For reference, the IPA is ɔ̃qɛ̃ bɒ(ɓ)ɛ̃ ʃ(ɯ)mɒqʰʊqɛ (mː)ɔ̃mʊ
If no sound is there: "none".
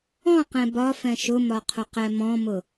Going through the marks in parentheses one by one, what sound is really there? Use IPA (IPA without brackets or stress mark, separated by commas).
f, ʊ, m